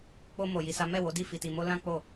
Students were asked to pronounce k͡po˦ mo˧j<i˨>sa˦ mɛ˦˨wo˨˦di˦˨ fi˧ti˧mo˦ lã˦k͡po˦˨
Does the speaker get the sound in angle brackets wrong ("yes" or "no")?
yes